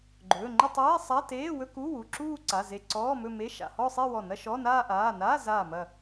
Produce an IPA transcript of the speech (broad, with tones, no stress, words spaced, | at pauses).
ɡ͡ǃɵː˩˧˩ ŋ͡ǃə˥˧tˤeː˧˥˧sˤa˧˥˧ teː˧˥˧wɵ˥˧kuː˧˥˧wu˩˧˩ ǁuː˥˧ǀa˩˧˩ze˧˩ ǀɔː˧˥˧mɵ˥˧me˧˥˧ ʃa̰˩˧˩hɔ˥˧sˤe˥˧ wɔ˧˩nɐ˥˧ʃɔ˧˥˧ naː˥˧ʔaː˩˧˩ naː˧˥˧zaː˧˩ mɐ˧˩